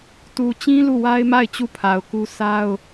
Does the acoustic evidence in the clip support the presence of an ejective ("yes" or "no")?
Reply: no